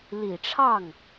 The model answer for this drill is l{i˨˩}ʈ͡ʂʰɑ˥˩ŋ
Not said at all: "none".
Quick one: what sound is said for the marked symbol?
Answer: i˨˩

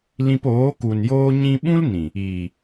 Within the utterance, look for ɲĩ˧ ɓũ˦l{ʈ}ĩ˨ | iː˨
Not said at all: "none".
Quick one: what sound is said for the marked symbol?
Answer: n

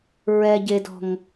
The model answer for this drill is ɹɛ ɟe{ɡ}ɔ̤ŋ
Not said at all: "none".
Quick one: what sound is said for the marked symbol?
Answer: d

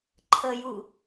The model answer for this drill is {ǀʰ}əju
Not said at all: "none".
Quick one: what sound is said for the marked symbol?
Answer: ǃʰ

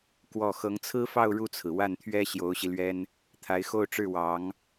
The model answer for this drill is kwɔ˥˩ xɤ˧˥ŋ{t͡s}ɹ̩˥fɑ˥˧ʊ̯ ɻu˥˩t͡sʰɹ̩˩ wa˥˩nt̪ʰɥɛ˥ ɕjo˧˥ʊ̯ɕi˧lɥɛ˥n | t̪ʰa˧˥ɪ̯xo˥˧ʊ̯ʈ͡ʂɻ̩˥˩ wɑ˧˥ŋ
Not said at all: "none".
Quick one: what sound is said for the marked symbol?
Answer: t͡sʰ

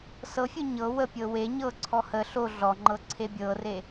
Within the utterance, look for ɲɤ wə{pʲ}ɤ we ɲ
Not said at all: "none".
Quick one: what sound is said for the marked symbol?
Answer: pʲ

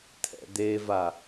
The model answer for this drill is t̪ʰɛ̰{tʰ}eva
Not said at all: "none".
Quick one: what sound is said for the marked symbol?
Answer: d̪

